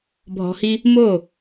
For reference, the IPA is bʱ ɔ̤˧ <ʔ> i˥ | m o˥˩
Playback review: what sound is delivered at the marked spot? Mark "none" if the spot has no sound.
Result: h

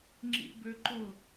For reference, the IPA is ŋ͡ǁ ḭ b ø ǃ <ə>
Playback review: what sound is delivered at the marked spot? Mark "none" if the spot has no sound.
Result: ʊ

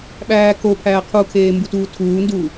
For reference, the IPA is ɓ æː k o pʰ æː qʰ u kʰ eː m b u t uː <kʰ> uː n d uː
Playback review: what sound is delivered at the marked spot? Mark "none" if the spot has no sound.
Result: tʰ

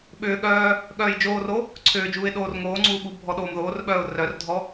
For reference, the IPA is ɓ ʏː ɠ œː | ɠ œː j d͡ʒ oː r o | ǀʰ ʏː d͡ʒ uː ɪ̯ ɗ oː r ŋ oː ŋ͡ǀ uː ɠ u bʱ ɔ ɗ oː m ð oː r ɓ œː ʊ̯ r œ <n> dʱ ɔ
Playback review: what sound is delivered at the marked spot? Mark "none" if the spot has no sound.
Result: r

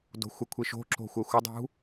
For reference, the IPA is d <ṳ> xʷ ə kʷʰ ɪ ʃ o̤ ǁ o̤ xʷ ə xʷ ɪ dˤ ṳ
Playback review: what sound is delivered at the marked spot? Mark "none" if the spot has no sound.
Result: o̤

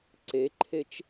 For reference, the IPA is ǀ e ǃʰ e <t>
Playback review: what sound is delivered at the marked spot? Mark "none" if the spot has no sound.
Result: t͡ʃ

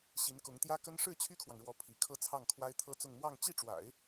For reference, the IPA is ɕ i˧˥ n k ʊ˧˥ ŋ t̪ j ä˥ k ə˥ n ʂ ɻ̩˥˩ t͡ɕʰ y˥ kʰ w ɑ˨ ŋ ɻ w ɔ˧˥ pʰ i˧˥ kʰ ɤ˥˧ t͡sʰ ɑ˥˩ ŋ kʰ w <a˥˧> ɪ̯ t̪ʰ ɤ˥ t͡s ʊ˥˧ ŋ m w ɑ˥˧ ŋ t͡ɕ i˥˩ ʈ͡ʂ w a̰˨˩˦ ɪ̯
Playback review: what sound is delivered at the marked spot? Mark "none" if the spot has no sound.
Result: a˥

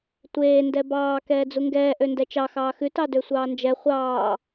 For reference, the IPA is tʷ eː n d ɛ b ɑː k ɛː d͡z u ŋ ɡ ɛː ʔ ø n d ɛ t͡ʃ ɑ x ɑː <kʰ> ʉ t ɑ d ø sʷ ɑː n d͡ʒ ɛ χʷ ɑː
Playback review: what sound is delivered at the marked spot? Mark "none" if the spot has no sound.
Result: x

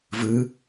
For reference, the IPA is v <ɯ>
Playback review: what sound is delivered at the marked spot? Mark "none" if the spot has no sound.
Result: ɯ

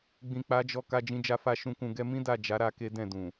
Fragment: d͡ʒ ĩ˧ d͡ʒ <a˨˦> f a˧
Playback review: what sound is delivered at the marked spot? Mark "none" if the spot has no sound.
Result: a˧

